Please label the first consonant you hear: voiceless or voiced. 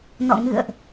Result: voiced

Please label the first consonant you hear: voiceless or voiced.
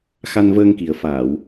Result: voiceless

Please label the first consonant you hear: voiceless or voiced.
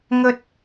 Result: voiced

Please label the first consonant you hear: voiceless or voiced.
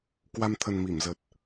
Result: voiceless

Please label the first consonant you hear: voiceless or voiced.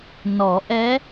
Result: voiced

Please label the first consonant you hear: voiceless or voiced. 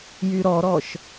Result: voiced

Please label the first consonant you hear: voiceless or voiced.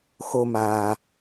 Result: voiceless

